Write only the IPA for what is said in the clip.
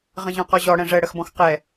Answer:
ʁə̃ʑɔ̃qɔʑɔ ɽɛ̃ʐɛ ɽəxbɔ̃xqɛ

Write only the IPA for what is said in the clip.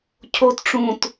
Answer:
cʰot ʈ͡ʂũt

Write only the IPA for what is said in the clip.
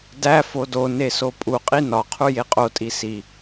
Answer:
dæ fodone sopʼuqʼi nɒqʰu jeqʼotʼi si

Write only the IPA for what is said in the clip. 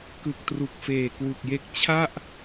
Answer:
kɯ˨˩k̚tru˨˩k̚ feː˨˩kwu˨˩k̚je˦˥k̚ t͡ɕʰa˥˩ʔ

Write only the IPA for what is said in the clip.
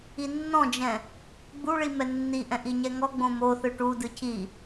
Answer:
inːɔ̃d͡ʒɛ̃ | ɡ͡buɭi mɛnːiʔɛ̃ ʔiɲɛŋɔɡ͡bõ moθɯ ʈudɯ cʰi

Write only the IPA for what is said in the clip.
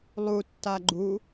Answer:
lˠutːa ɡ͡ǃu

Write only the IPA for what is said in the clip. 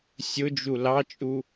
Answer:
sʲʊd͡ʒu lɑt͡ʃʼu

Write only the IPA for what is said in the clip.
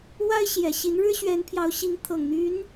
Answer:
wa˥ɪ̯ɕjɛ˨˩ ɕi˧˥nɻɻ̩˥ɕɥɛ˧˥npʰjɑ˧˥ʊ̯ ɕi˧˥ŋt̪ʰɤ˨˩ŋ n̪y˧˥n

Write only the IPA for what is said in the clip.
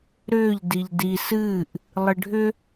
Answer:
ɾʏːʎ diʎdi sɨːʔ | lˠɨɖʱʏ

